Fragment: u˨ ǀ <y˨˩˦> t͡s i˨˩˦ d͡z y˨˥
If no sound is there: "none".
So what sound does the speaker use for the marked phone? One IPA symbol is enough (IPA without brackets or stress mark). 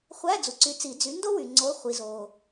y˨˥